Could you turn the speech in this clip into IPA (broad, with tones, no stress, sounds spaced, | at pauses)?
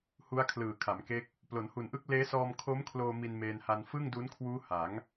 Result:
h u˦˥ a̯ kʰ l ɯː˨˩ kʰ a˩˦ m k e˦˥ k̚ | p l o˩˦ n h u˨˩ n ʔ ɯ˦˥ k̚ l eː˦˥ s ɔː˧ m kʰ o˦˥ m kʰ l oː˧ m i˧ n m eː˧ n h a˧ n f ɯ˥˩ ŋ d u˦˥ n kʰ w uː˦˥ h a˩˦ ŋ